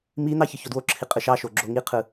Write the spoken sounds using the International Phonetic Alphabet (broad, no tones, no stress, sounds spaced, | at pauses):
m i n̪ ɑ ç ɯ ç o d w o ǁʰ i qʼ ɯ ʃ ɑ ʃ o ɡ͡ǁ o ŋ i qʰ ɯ